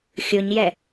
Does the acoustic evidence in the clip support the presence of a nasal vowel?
no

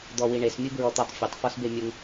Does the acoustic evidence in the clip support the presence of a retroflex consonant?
yes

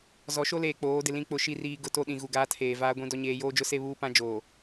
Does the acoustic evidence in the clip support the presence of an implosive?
yes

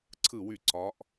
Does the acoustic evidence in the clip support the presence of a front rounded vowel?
yes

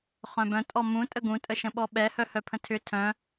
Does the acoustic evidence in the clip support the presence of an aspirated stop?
yes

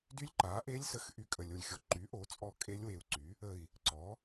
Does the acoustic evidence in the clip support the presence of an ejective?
yes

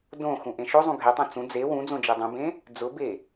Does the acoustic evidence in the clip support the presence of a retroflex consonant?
no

